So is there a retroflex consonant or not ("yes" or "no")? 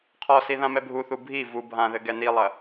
no